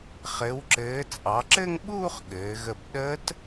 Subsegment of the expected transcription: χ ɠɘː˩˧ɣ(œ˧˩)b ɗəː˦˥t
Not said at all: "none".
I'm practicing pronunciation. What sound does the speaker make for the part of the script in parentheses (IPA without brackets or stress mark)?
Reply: ə˧˩